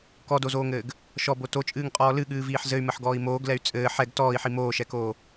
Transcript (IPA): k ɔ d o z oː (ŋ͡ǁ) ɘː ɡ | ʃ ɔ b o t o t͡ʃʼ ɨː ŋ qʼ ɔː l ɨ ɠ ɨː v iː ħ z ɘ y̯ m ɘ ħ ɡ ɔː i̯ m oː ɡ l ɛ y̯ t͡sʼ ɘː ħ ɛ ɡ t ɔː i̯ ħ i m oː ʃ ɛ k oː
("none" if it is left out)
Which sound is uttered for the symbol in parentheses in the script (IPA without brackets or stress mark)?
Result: ŋ